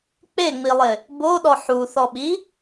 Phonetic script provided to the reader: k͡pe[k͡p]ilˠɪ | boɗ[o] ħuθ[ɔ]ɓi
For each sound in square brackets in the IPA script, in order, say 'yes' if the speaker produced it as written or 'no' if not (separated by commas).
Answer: no, no, yes